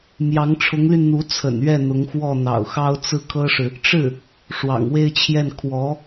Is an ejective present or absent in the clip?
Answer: absent